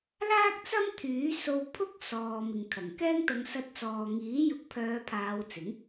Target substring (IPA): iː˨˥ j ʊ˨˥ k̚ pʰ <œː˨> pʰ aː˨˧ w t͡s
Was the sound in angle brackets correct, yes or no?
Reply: no